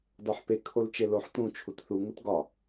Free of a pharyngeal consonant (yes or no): no